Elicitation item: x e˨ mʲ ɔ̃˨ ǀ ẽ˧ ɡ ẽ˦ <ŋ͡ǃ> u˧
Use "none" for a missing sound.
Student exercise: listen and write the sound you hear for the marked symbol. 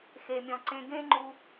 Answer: ŋ͡ǃ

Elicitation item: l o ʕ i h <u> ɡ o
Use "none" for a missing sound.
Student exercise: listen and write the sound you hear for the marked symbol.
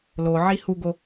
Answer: u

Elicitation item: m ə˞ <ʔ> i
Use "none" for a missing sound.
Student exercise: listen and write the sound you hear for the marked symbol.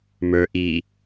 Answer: ʔ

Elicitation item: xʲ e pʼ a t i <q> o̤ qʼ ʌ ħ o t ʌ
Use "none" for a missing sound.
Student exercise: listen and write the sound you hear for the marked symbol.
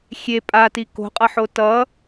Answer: k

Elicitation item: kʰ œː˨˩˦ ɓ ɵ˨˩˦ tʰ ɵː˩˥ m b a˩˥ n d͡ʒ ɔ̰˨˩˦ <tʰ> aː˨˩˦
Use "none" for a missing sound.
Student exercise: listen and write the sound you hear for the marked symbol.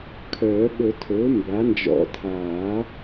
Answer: tʰ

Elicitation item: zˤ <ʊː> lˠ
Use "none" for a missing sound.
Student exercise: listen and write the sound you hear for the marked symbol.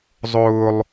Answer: ʊː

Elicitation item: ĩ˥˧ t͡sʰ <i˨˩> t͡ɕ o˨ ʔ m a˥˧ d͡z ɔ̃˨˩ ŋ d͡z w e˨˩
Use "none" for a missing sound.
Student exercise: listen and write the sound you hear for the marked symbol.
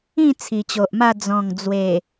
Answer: i˨˩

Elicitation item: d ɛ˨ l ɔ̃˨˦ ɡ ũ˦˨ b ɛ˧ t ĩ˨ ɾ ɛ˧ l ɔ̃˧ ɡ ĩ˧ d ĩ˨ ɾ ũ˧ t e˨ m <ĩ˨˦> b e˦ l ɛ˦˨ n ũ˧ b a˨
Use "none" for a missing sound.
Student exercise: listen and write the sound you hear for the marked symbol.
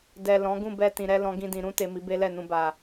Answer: i˨˦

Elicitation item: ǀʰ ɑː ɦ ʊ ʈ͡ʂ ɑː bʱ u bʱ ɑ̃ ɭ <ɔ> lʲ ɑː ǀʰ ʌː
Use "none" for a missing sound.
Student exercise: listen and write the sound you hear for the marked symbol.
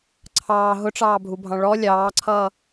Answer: ɔ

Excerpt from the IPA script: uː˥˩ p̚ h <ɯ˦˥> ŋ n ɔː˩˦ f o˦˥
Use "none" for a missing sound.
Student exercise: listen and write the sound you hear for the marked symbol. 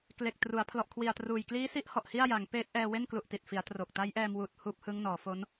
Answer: ɯ˦˥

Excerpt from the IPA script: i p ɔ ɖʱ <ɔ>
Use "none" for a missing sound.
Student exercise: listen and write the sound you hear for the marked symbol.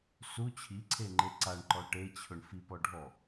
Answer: ɔ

